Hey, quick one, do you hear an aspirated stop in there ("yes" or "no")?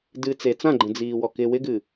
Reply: no